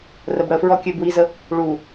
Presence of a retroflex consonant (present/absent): present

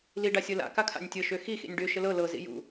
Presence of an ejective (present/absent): absent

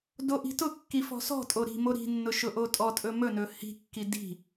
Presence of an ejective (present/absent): present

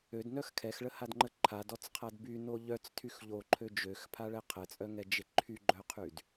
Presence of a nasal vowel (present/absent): absent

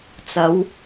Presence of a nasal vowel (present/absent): absent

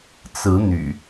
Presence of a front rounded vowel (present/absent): present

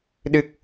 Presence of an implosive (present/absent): present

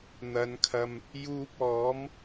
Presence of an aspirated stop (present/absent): present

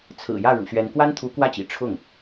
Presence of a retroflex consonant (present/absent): present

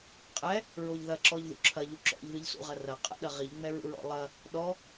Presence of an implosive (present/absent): present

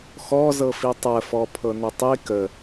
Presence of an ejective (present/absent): absent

